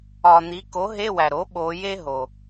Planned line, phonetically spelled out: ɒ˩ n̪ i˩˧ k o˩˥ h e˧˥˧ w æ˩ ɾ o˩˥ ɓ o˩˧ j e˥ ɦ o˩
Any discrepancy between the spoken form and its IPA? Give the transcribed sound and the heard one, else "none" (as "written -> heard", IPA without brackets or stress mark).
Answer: h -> ɦ